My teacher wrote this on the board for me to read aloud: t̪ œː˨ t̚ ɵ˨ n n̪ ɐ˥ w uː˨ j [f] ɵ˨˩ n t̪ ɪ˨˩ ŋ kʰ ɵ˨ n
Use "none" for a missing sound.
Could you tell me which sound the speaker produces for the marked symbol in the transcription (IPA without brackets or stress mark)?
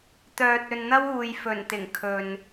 f